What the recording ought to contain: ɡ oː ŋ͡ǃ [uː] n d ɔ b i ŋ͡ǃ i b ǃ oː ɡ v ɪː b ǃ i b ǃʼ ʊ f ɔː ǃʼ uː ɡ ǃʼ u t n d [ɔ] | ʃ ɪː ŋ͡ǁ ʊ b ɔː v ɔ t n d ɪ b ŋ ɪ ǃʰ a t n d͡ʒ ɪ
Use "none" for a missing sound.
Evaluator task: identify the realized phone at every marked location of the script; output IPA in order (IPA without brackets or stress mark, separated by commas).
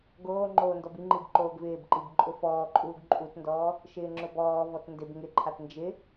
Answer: oː, ɔː